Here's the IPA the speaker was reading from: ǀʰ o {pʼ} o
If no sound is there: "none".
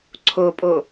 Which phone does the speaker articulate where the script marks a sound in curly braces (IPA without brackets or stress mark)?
pʼ